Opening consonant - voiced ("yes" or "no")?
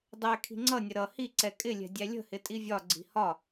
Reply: yes